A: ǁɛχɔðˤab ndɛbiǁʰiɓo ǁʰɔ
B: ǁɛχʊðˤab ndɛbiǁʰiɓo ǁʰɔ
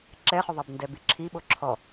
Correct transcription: B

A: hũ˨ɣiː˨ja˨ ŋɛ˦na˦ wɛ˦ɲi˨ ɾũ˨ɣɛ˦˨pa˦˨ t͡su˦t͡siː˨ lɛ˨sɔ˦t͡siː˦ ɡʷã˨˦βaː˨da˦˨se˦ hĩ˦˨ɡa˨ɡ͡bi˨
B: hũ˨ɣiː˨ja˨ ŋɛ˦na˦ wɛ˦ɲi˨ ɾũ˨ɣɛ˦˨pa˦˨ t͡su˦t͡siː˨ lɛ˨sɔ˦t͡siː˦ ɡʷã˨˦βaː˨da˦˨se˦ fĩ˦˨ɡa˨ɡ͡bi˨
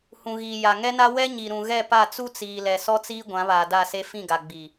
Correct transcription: B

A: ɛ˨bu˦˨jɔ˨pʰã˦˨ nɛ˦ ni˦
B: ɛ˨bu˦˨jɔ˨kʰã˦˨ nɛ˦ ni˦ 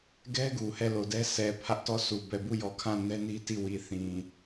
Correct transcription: B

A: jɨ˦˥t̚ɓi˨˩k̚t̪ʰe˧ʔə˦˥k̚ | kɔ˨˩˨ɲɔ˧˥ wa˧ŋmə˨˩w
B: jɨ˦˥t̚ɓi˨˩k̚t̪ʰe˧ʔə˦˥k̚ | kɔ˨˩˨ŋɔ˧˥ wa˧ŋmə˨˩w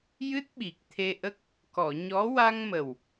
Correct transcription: A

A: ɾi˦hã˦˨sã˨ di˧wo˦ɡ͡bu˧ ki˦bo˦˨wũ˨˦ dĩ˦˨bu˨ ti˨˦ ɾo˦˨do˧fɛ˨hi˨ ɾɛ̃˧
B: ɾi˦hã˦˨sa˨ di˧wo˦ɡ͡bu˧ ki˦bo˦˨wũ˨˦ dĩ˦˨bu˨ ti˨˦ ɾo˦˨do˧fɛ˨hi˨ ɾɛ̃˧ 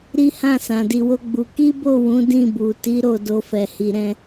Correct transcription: A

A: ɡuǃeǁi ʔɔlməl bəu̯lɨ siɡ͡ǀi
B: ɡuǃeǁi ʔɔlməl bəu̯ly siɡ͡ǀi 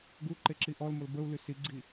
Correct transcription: B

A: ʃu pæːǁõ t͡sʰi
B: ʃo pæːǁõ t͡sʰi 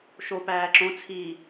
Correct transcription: B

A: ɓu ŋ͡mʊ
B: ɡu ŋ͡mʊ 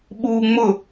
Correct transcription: A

